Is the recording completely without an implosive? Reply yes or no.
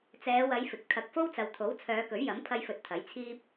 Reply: yes